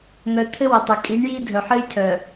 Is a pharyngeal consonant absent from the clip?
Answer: no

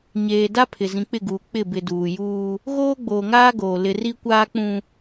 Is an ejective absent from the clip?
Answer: yes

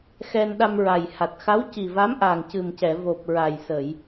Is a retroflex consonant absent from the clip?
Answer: yes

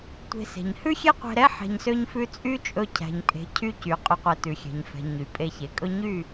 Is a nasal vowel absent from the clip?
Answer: yes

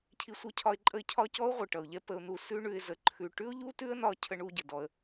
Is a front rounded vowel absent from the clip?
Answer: yes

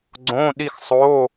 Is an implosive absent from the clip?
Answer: no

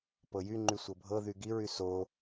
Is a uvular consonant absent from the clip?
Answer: yes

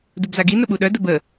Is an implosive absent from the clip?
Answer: no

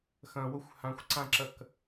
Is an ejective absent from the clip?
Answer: yes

